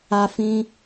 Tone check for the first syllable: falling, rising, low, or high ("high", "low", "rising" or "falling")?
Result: high